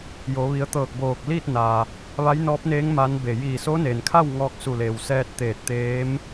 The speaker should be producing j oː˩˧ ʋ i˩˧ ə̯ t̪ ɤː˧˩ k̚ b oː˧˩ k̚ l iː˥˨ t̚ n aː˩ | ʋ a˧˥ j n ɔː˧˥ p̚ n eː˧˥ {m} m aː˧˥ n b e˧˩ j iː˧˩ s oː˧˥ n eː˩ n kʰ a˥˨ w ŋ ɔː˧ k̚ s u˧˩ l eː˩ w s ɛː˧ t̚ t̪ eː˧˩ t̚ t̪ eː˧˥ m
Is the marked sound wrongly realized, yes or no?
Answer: yes